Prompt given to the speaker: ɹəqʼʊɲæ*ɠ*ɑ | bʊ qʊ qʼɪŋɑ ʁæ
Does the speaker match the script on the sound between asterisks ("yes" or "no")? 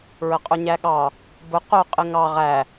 yes